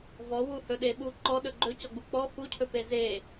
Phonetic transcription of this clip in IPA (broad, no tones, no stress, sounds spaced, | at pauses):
v ɔ w u h ɵ ɗ e ɓ u ǃ ɔ ɗ ɵ ɡ͡ǃ ɵ c ɔ ɡ͡b u k͡p ɔ f u cʰ ɵ p e z e